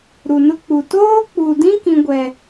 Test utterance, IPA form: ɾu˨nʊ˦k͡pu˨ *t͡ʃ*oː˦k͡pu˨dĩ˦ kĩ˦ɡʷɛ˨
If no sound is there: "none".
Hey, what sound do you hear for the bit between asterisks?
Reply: t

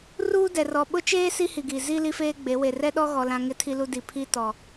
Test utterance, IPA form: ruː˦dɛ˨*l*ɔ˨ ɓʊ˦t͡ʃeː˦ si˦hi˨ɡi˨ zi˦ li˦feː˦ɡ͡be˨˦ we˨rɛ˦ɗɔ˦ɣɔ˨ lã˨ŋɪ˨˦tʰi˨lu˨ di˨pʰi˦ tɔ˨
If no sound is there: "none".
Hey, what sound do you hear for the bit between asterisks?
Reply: r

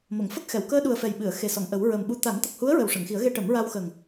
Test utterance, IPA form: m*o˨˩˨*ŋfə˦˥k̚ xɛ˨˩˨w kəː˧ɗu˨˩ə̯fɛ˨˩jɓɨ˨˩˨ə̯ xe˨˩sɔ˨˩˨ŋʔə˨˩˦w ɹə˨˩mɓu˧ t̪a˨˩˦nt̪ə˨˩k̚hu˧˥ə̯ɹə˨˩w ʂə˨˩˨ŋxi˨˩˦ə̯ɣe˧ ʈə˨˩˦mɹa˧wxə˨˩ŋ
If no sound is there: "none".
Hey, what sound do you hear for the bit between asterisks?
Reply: o˨˩˨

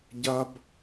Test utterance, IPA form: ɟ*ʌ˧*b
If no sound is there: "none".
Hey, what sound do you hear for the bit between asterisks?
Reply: ʌ˧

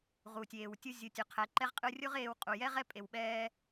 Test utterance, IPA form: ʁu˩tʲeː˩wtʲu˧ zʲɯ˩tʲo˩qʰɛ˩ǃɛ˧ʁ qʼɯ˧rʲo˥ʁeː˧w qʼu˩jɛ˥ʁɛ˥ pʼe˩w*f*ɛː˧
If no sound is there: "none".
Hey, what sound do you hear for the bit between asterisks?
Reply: ɓ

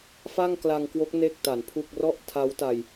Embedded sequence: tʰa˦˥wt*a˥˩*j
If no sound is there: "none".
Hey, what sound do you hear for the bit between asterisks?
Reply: a˧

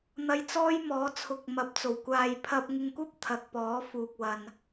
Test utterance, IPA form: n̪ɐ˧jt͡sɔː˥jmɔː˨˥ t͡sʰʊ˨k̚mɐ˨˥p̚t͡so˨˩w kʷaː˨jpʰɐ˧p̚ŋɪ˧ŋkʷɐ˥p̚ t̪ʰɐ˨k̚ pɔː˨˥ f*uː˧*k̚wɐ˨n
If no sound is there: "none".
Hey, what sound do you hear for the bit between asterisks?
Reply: uː˨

